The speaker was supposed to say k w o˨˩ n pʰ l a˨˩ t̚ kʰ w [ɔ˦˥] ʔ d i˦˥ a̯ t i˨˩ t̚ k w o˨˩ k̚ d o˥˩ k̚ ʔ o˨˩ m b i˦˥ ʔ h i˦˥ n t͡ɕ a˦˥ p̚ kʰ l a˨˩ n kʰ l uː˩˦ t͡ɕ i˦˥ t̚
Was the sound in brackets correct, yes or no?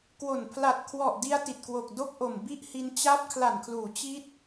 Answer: no